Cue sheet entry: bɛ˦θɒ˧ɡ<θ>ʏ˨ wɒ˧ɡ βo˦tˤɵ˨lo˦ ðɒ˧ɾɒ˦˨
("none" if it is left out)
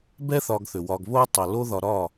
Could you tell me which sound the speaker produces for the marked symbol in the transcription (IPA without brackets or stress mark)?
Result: θ